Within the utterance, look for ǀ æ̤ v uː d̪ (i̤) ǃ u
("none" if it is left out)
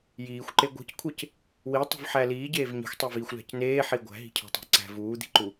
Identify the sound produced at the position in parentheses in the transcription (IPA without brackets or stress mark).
i̤